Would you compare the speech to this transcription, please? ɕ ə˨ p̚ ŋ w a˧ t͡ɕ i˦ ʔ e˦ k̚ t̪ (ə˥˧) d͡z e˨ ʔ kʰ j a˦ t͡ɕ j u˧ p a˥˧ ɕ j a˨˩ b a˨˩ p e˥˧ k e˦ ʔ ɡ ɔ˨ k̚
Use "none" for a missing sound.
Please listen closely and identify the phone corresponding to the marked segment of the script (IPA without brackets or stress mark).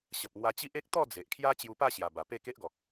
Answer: ɔ˥˧